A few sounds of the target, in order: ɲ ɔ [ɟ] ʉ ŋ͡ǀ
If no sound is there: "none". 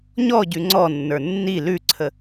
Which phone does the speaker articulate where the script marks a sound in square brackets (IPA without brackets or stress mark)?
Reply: ɟ